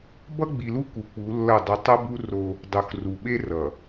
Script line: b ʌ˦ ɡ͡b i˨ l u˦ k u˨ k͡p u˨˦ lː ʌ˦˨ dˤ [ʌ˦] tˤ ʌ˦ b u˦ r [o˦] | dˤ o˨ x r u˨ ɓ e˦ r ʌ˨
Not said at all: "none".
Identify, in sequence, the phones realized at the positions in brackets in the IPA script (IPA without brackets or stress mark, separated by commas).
ʌ˦, o˦